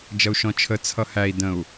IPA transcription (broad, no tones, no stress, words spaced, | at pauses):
d͡ʒʌu̯ʃɔ̃t͡ʃʰə t͡sʰʌhæi̯ də̃u̯